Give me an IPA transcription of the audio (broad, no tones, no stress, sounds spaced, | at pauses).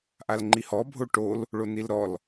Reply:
ʔ a l ŋ͡ǃ i h ɔ bʱ o ʈ o l | ɭ o n i l ɾ ɔ l